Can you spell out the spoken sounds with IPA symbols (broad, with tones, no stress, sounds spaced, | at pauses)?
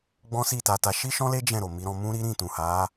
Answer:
ɡ͡b ɔ̃˦ s i˦˨ t a˧ t a˧ ʃ i˦ ʃ ɔ̃˦ l e˦ d͡ʒ ɛ̃˦˨ ɾ o˨ m i˨˦ ɾ ɔ̃˧ m ũ˦ ɾ i˦ ɾ ĩ˦˨ t ũ˨ h a˨˦